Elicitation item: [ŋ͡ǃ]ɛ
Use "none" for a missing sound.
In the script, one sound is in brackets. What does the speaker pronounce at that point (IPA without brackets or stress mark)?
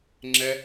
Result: ŋ͡ǁ